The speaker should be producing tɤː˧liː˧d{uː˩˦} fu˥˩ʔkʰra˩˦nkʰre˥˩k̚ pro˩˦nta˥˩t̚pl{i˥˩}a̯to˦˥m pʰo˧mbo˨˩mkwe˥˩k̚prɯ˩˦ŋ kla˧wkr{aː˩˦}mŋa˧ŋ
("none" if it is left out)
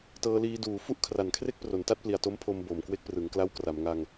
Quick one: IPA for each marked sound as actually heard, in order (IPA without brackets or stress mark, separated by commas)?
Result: uː˩˦, i˨˩, a˩˦